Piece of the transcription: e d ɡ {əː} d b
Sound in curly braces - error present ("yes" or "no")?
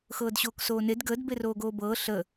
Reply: no